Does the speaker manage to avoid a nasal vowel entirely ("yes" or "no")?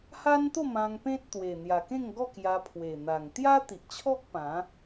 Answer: no